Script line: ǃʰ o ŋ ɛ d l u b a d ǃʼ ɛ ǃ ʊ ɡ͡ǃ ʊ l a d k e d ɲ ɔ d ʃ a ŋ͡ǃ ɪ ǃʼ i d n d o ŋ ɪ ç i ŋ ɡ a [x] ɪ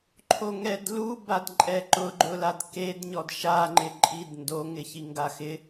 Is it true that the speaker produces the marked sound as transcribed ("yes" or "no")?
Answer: yes